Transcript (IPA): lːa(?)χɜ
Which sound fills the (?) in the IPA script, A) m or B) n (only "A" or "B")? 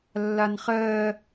B